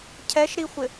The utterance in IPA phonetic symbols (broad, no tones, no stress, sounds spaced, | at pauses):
cʰ ɛ ʃ ɾ i xʷ ɪ